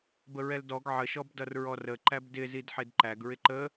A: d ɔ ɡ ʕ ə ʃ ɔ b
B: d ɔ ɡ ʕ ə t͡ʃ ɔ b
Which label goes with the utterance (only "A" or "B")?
A